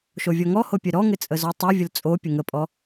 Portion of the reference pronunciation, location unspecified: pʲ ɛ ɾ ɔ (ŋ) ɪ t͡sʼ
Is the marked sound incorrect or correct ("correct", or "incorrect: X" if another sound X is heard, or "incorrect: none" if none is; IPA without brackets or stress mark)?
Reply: correct